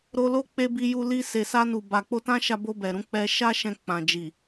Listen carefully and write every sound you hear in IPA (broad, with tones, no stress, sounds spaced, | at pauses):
ɾ o˧ l o˦ k͡p e˧ b i˧ j u˧ l i˧ s e˨ s a˧ n u˨ b a˨ k͡p o˧ t ã˦ ʃ a˧ b o˧ b ɛ˨ ɾ ũ˨˦ k͡p ɛ˧ ʃ a˦ ʃ ɛ̃˧ k͡p ã˨ d͡ʒ i˨